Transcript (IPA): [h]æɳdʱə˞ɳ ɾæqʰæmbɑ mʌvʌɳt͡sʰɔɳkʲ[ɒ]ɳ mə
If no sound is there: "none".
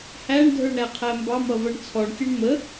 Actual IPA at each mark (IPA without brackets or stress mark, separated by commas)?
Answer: h, ʌ